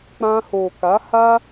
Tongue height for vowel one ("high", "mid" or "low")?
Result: low